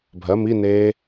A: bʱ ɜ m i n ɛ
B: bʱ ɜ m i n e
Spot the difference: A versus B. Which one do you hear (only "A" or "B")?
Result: B